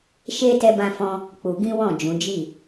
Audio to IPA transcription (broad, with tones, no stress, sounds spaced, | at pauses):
ʃ e˦ t ɛ˦ b ã˦ f ɔ̃˦ | k͡p u˧ ɡ ĩ˦ w ɔ̃˦˨ d͡ʒ ũ˨˦ d͡ʒ i˦˨